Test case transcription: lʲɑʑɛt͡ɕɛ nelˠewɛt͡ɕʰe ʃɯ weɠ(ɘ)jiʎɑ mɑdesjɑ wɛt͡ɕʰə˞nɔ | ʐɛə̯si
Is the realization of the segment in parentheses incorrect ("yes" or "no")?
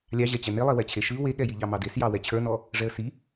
yes